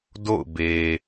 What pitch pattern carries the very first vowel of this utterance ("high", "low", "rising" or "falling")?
falling